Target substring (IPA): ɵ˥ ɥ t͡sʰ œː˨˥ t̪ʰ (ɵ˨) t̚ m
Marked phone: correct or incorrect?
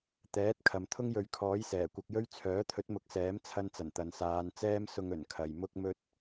incorrect: ɵ˨˥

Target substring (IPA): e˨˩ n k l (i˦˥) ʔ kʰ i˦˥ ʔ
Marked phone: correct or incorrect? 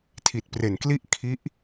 incorrect: i˥˩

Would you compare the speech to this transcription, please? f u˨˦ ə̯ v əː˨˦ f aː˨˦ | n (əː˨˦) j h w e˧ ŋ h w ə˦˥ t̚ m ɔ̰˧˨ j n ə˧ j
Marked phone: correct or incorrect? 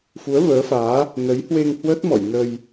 incorrect: ə˨˦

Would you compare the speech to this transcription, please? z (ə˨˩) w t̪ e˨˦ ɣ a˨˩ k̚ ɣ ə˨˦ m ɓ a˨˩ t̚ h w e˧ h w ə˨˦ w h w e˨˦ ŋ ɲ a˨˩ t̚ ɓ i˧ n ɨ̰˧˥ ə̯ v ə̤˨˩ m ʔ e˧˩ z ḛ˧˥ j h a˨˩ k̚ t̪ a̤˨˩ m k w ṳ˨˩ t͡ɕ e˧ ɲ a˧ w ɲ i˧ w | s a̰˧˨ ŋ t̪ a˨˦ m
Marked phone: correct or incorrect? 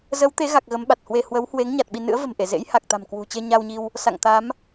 incorrect: ə˨˦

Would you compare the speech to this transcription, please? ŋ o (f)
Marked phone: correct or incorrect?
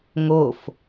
correct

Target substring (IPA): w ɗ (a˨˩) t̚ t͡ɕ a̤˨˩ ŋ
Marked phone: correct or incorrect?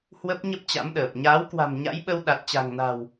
correct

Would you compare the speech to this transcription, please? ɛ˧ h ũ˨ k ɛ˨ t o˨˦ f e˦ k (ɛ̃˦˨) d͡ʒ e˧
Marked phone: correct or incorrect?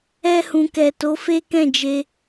correct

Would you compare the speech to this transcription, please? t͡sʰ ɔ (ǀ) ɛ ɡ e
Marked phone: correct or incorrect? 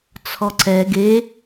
correct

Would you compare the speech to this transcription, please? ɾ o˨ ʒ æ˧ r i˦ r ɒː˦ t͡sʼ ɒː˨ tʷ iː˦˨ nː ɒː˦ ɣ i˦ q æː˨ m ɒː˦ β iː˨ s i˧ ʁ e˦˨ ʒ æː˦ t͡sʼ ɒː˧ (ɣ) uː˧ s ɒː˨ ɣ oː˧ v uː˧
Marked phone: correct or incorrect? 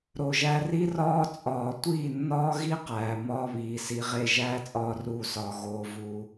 incorrect: r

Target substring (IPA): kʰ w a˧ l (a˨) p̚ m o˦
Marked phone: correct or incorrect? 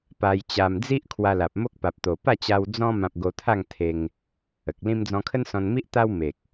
correct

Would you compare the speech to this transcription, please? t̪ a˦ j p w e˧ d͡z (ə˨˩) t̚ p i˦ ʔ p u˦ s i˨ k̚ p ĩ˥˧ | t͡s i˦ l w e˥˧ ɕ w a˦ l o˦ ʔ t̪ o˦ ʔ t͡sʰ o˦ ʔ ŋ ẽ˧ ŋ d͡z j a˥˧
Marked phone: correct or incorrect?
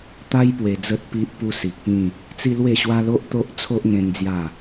incorrect: ə˦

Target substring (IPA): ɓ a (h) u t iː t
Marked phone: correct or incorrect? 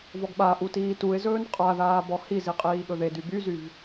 incorrect: ʔ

